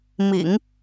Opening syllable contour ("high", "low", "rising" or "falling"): low